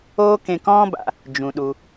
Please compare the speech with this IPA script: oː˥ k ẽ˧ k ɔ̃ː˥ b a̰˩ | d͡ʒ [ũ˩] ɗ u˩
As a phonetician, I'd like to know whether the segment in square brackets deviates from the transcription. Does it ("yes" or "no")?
no